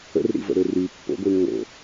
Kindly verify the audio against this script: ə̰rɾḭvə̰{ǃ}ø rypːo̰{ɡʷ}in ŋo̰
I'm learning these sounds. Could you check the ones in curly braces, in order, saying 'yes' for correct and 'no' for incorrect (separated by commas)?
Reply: no, yes